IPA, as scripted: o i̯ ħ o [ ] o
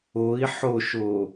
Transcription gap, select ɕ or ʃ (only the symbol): ʃ